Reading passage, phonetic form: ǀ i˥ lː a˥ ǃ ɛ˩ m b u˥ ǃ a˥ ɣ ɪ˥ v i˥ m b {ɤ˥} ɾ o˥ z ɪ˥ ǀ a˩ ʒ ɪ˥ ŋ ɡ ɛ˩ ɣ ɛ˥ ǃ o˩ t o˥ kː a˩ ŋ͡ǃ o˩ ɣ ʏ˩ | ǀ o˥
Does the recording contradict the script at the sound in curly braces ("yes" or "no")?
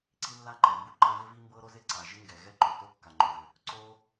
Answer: no